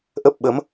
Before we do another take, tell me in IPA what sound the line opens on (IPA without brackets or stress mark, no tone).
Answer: ʔ